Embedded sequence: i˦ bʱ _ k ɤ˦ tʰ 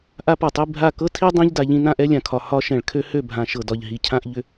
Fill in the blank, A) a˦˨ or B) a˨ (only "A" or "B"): A